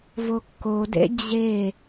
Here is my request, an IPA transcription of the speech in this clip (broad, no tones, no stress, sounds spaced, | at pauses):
v o kː o d ḛ d͡ʑ e